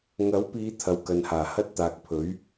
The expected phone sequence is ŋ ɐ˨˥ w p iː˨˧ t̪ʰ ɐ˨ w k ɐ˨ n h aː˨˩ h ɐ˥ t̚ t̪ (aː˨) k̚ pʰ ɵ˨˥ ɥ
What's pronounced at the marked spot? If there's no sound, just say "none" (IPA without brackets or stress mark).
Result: aː˨